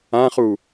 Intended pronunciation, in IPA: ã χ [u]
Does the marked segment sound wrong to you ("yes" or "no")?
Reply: no